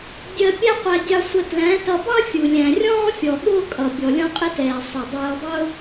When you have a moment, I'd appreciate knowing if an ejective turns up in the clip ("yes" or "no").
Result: yes